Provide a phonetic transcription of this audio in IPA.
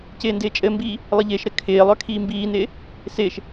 c ɪː n d ɪː t͡ʃʼ ɘ m b iː | lˠ ɘ ʎ ɪː ʃ ɾ ɘ kʰ ɪː lˠ œ kʰ iː m b iː n ɪː | s ɪː ʃ

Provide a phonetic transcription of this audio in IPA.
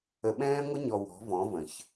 ə˨ ɓ ɛ̃ː˦ ŋʷ ə˦ ɲ ɔ˨ w ɔ̤˨˦ v ɔ̃˨˦ v ə̃˨ ç

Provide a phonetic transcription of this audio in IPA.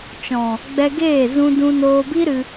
t͡ʃ ɔ̃˨ | ɡ͡b ɛ˧ ɡ eː˦˨ z ũ˧ d ũ˧ n oː˧ b i˦ ɾ ɨ˧

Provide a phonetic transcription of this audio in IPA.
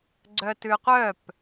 ɡ͡ǀ œ t ʉ qʷ œ p

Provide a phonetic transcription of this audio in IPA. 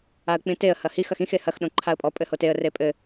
a ə̯ k͡p ĩ t e ə̯ h ɐ h i x ɐ x ĩ x e h ɐ x ɗ õ ǃʰ a ə̯ pʼ ɔ pʼ ɘ h o t e ə̯ r e pʼ ɘ

